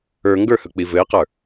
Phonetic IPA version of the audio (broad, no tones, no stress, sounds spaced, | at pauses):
ə˞ ŋ ɡ ə˞ h ɵ k͡p i v ɘ ɪ̯ q ə˞